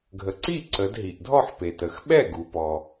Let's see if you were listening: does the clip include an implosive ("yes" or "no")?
yes